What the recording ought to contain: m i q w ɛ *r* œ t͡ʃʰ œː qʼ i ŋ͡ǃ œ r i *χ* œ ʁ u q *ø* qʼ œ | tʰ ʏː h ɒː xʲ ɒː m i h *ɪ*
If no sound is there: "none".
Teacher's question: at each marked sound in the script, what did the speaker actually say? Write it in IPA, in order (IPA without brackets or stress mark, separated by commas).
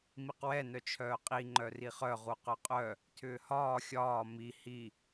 n, χ, œ, i